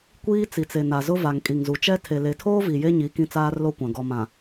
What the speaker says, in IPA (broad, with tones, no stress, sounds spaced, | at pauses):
kʷ iː˦ t͡s i˨ t͡s e˨ n a˨ z ʊ˦ v a˨ ŋ kʼ i˨ ŋ z u˨ t͡ʃ ɛ˦ tʰ e˨ l e˨˦ tʰ oː˦ v i˨ j e˦ ɲ i˨˦ k ĩ˦ t͡s aː˦ r l o˦ kʷ ã˨ ɡ ɔ˨ m ã˨